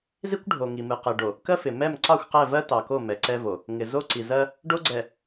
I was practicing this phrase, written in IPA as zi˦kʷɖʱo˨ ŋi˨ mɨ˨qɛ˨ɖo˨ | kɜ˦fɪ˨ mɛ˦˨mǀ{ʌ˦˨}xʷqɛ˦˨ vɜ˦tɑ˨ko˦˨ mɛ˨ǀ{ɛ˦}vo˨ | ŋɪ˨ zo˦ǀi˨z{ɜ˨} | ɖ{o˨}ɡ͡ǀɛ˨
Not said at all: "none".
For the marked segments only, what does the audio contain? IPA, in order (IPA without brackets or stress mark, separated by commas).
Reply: ɑ˦˨, ɛ˦, ɜ˦, o˦